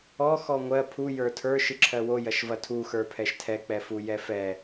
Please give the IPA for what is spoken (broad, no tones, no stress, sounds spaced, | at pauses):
ɔ x ɔ ŋʷ ɜ pʰ u j ə˞ tʰ ə˞ ʃ ɨ ǁʰ ɜ w o j ɐ ʃ v ɐ tʰ u x ə˞ pʰ ɛ ʃ tʰ ɛ k͡p ɛ f u j ɛ f ɛ